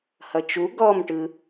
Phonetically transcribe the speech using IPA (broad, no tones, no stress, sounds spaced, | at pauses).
h ʌ t͡ʃ u ɡ ɔ m ʈ ɯ